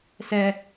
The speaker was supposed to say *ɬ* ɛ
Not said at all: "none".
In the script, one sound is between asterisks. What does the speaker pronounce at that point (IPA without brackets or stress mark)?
s